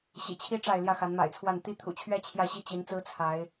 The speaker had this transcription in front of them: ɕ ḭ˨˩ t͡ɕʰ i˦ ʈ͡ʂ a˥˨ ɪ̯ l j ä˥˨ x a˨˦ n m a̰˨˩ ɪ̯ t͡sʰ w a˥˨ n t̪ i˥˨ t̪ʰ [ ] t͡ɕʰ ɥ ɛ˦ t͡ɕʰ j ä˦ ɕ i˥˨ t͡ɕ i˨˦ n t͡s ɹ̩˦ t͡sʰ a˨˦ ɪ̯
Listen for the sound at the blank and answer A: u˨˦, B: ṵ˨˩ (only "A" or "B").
B